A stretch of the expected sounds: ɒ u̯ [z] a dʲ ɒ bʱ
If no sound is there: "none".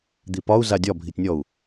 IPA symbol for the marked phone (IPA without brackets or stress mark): z